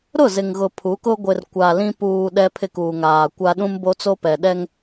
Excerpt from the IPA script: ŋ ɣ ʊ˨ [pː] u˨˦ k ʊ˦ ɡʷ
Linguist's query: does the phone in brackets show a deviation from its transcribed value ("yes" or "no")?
yes